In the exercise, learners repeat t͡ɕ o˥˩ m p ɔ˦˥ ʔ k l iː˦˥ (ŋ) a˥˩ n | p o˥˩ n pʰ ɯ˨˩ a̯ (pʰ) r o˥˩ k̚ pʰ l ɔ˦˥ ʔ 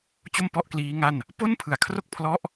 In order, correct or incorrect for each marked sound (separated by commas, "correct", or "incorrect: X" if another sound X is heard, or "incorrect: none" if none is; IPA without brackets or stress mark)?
correct, incorrect: kʰ